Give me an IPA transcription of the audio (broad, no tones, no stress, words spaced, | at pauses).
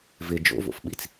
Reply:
vɪ d͡ʒo̰vo̰fɓit͡s